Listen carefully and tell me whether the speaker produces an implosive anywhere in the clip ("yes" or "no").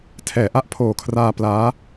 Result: no